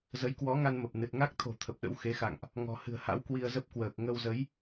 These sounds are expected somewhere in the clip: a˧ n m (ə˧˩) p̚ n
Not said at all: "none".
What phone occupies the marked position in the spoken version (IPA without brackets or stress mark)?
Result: ə˨˩